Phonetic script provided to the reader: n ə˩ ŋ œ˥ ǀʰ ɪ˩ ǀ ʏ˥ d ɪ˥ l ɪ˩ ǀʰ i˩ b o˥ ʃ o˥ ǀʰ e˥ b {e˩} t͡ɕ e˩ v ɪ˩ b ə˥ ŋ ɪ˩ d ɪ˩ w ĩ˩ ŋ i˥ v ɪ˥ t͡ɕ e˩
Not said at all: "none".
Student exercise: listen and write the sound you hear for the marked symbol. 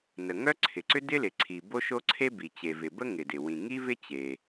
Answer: i˩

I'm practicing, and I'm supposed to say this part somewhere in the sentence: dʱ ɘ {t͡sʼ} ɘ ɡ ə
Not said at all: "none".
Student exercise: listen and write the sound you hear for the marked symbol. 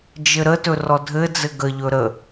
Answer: d͡z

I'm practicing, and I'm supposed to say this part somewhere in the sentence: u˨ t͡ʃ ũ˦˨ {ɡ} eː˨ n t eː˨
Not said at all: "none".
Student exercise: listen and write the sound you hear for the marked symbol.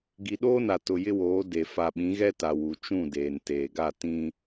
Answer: d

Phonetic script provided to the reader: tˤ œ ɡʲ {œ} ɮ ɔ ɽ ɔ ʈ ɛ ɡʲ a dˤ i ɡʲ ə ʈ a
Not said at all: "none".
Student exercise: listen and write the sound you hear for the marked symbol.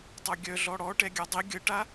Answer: œ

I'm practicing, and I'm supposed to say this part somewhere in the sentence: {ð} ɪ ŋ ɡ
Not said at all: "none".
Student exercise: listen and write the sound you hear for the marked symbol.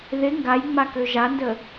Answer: ð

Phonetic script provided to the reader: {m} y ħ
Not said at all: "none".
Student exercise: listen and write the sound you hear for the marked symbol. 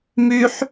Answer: m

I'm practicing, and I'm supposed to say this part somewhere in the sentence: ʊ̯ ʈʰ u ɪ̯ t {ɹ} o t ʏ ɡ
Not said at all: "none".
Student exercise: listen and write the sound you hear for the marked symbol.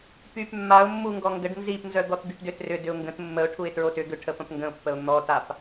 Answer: ɹ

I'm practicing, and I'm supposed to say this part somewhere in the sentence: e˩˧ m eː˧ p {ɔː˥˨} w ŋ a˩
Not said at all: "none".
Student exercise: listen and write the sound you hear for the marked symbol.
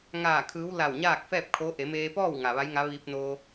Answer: ɔː˥˨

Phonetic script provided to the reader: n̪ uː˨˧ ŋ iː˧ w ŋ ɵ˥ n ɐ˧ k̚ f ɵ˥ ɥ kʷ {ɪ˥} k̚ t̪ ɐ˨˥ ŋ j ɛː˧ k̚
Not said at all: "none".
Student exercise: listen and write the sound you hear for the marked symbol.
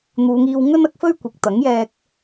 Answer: ɪ˨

